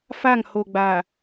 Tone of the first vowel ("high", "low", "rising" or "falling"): falling